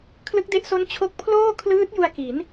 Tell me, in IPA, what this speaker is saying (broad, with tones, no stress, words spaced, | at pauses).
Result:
kʰlɯ˦˥k̚de˦˥ʔso˦˥n t͡ɕʰo˦˥k̚ pʰloː˥˩kʰlɯː˦˥t̚ ju˧a̯ki˩˦n